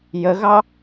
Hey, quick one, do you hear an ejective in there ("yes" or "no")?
no